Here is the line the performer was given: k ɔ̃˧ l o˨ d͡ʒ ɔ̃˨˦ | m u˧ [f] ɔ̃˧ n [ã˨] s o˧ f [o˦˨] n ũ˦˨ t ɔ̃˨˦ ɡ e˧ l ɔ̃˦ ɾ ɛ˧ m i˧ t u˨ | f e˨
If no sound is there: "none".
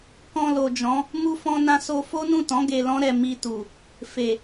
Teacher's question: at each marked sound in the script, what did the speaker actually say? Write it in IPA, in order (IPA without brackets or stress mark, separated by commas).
f, ã˧, o˦